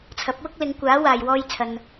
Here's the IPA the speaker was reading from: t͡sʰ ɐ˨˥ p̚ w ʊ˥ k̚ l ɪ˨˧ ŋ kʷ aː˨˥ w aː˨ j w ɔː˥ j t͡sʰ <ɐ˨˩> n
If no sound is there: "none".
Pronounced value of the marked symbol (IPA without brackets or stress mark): ɐ˧